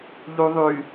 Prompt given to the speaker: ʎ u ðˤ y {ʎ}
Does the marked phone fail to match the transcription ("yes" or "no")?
yes